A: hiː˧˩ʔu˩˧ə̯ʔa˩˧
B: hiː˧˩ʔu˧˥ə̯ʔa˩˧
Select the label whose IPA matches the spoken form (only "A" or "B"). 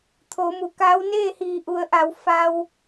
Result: A